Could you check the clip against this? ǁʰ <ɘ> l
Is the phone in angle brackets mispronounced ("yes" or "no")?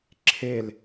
yes